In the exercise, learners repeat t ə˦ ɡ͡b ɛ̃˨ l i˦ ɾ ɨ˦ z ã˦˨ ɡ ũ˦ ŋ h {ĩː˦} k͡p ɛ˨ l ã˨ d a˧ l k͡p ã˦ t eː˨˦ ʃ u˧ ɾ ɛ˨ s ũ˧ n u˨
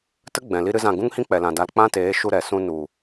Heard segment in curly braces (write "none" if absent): ĩ˦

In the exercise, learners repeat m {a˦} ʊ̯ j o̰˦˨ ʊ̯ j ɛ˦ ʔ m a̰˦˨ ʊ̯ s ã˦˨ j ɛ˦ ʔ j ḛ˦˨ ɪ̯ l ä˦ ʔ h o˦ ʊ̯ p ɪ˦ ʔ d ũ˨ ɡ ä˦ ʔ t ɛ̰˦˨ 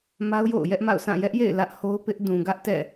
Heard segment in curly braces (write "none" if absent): a˦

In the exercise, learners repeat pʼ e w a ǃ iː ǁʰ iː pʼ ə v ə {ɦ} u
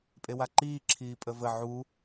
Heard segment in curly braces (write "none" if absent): ʕ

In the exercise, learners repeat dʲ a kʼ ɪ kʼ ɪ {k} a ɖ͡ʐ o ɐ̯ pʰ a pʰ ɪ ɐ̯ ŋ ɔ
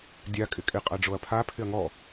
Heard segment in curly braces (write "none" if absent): qʼ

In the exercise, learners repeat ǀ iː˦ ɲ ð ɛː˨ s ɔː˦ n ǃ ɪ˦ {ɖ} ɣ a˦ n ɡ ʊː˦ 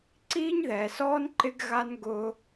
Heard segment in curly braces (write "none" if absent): ɡ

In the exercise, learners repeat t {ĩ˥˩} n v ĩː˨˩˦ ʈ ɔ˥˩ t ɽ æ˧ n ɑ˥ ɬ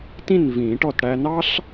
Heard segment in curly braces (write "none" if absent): ĩ˥˩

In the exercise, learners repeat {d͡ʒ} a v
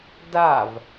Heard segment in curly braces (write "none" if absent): d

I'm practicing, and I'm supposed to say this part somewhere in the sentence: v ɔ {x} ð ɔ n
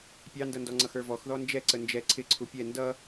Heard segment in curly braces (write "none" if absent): x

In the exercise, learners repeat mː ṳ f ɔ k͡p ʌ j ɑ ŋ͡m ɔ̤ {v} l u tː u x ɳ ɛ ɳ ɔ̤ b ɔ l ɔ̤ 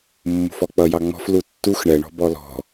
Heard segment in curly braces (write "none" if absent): f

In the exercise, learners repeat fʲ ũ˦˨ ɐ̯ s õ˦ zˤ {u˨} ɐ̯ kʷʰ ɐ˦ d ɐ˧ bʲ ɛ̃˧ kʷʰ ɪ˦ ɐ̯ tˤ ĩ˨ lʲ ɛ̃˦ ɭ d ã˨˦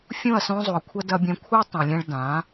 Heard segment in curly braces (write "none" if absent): u˨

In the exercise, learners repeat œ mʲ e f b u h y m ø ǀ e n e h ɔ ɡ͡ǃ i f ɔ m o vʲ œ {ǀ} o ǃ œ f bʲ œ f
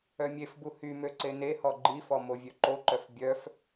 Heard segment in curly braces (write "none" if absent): ǃ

